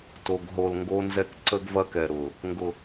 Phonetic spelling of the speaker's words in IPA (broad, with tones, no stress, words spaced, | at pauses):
to˨ɡ ɦo˨lŋɡo˧nzɛ˧k ǀə˦ɡvɐ˦kɛ˨ ɾʊ˨ | ŋɡʊ˨